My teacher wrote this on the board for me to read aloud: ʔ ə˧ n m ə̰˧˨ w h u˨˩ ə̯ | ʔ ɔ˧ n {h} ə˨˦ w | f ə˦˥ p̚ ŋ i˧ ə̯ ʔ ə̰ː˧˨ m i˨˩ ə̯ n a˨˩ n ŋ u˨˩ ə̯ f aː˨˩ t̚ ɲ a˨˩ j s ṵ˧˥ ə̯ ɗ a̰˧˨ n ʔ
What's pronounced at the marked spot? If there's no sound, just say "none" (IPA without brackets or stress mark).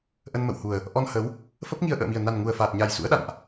h